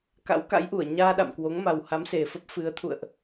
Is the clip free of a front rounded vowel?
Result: yes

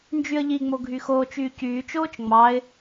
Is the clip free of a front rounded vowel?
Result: no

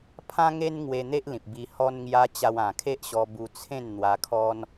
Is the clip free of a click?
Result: yes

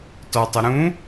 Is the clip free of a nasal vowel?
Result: no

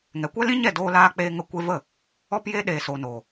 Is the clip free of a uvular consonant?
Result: yes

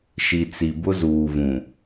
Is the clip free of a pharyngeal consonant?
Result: yes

